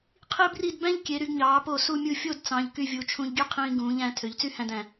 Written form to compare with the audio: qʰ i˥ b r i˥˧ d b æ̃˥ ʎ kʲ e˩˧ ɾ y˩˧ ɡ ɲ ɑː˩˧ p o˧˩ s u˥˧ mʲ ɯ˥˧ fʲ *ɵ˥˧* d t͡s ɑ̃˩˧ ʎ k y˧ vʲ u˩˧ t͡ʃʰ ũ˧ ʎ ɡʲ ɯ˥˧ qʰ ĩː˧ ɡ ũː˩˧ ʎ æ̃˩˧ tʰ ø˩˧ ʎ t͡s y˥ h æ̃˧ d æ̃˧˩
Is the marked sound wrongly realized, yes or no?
yes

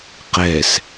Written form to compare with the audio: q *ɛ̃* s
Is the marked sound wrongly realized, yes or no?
yes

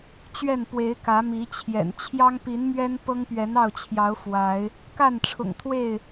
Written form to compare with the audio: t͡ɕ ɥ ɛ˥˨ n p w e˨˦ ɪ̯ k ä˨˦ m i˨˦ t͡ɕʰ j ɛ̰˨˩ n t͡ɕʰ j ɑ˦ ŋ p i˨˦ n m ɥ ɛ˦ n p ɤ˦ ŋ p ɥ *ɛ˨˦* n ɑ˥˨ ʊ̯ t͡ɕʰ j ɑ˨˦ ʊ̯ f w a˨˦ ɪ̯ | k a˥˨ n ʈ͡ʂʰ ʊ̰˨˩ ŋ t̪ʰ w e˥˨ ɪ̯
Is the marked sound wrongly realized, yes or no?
no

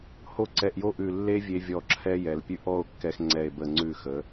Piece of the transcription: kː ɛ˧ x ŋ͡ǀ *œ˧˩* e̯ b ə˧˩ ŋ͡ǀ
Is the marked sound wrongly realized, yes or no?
yes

